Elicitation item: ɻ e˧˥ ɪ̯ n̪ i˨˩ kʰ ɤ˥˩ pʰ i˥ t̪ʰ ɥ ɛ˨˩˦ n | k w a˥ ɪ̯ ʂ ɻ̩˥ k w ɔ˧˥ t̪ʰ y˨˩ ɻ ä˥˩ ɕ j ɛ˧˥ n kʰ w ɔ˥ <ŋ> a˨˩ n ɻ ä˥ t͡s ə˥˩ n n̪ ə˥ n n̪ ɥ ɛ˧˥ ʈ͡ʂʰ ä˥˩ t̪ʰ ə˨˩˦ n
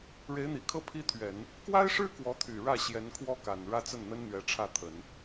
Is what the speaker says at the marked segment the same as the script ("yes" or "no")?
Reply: no